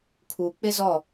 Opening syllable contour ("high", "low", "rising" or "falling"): low